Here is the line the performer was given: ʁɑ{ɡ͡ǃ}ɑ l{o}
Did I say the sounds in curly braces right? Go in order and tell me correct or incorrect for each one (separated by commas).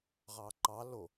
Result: incorrect, correct